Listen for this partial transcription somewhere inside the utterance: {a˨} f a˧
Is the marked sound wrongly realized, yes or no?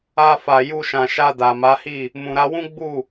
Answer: yes